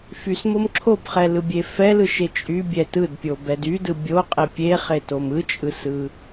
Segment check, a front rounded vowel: present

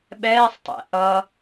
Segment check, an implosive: present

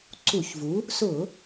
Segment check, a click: present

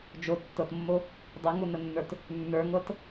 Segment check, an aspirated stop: absent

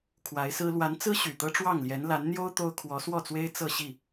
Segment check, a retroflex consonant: present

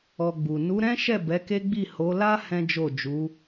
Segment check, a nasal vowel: present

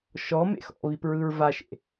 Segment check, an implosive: absent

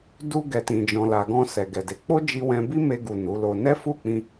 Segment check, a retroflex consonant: absent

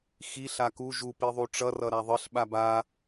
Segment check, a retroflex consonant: present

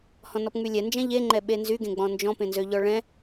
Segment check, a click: present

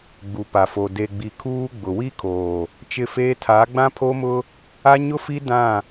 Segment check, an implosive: absent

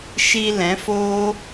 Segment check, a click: absent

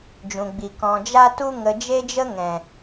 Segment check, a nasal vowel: present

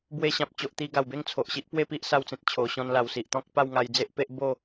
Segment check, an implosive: absent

